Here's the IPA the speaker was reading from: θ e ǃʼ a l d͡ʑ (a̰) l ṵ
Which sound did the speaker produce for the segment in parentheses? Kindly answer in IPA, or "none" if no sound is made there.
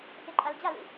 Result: a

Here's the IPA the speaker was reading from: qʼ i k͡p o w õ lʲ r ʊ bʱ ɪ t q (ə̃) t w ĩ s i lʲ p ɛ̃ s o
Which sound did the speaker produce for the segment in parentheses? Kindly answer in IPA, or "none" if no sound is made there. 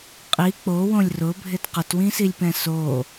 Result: ə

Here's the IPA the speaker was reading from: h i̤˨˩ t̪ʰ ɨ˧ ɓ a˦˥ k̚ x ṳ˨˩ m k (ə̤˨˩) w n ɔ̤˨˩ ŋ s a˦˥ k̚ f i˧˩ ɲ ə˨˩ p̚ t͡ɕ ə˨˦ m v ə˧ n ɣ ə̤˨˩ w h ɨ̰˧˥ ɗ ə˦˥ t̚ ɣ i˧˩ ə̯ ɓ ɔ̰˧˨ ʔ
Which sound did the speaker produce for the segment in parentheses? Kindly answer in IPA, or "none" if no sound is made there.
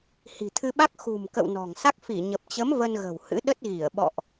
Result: ə̰˧˨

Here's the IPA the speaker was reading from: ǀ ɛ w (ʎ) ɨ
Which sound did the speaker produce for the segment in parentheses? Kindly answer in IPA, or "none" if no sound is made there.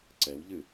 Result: ʎ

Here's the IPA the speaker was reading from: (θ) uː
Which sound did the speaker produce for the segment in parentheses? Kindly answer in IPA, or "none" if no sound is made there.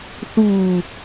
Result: θ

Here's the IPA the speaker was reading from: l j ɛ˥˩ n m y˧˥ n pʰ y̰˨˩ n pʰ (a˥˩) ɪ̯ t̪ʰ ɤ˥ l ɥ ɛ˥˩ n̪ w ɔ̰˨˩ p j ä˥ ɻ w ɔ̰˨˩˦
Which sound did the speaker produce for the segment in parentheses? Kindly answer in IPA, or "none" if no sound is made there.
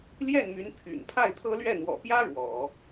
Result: a˥˩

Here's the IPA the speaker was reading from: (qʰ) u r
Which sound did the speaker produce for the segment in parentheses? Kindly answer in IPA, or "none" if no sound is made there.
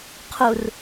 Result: qʰ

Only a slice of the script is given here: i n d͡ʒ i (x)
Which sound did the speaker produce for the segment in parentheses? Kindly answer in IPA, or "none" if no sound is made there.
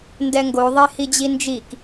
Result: k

